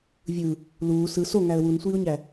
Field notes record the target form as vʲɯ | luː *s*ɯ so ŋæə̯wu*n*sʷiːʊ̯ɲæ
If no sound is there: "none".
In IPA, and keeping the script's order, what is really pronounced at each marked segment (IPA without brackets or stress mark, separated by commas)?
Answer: s, n